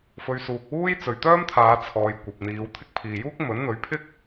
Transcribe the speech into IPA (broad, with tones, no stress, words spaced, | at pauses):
fɵ˨˧ɥsuː˨k̚ wuː˥jt͡sɵ˨ɥt̪œː˥mt̪ʰaː˨˧ t͡sʰɔː˨jkʷɐ˨p̚ n̪iː˨˧wt̪ʰɪ˥k̚ pʰiː˨juː˥k̚ mɵ˨˥nn̪ɵ˨˥ɥpʰɪ˥k̚